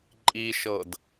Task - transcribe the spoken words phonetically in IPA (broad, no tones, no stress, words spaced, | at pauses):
ǃʼiʃɤd